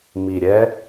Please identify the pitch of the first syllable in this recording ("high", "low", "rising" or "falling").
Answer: low